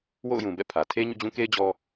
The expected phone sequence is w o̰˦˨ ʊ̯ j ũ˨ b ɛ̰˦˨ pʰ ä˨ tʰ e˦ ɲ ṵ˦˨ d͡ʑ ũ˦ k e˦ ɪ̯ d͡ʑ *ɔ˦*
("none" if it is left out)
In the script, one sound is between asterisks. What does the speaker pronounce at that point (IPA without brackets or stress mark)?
ɔ˦